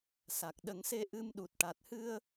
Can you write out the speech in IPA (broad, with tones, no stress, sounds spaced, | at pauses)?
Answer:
s a˨˩ k̚ ɗ ə˨˩˦ ŋ s e˧ ʔ ɨ˧ m ɗ u˨˩ t̚ ʈ a˨˩ t̚ h ɨ˧ ə̯